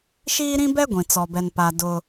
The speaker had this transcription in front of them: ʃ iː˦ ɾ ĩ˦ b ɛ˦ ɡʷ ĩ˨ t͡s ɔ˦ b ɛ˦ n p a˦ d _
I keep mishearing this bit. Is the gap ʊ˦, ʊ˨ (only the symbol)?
ʊ˦